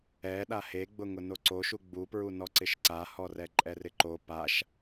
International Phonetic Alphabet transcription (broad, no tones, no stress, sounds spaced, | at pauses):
ɛ ɗ a h e ɡ͡b ʊ ŋ ʊ n o ǀ o ʃ u ɡ͡b u p ɹ u n ɔ ǀ ɪ ʃ ǀ a h ɔ r ɛ ǃʼ ɛ r ɪ ǃ o p a ʃ